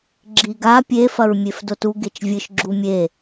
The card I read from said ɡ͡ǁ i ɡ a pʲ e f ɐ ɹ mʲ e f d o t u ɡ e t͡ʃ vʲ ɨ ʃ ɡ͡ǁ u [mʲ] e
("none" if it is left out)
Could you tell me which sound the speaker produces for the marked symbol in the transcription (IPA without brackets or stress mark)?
mʲ